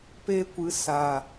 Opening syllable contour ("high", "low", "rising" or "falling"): high